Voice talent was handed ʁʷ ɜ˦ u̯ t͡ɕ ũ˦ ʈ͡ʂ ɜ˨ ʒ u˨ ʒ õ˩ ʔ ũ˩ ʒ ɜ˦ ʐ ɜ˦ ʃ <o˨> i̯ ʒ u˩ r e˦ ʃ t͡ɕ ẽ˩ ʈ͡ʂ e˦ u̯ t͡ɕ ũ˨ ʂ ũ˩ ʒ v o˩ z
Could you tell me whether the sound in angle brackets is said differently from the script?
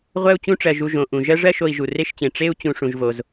no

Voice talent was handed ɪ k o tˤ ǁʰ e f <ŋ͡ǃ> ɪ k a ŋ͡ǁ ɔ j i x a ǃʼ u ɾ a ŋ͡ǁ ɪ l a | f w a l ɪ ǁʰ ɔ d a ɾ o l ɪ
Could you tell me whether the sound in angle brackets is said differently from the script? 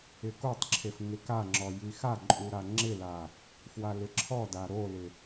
yes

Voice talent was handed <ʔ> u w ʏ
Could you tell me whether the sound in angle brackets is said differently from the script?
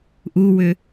no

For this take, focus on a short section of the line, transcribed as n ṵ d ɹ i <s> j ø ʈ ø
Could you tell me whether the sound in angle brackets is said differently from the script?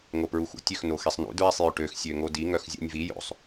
yes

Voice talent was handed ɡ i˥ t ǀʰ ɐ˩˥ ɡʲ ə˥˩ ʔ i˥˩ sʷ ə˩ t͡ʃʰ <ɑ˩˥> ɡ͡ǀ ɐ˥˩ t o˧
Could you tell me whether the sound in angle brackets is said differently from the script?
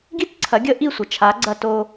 yes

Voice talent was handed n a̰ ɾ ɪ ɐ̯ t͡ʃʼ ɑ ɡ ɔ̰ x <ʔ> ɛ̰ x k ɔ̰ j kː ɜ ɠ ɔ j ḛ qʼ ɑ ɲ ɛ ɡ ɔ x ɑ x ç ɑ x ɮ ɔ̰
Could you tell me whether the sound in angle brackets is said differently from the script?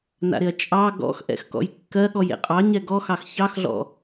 no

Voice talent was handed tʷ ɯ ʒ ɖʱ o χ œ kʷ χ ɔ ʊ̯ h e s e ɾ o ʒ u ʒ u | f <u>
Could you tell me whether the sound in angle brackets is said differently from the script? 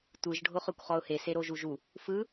yes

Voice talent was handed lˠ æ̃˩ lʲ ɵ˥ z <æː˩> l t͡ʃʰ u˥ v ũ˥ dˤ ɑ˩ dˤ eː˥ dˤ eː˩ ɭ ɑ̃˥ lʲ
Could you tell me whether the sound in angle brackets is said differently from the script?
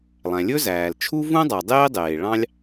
no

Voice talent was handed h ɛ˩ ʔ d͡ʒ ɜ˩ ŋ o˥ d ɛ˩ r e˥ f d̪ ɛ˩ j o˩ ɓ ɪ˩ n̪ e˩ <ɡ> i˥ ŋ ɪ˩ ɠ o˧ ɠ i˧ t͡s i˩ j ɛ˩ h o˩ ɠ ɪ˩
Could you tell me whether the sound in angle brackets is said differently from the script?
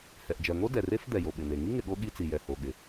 yes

